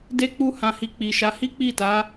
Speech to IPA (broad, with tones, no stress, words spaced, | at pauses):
de˦k͡pu˦hã˧hi˧ k͡pi˨ʃa˨˦ hi˦k͡pi˦˨ta˨˦